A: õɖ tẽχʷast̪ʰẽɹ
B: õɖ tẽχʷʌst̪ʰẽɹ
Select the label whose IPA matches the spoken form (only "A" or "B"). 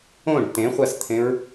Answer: A